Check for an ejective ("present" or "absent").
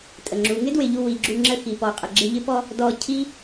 present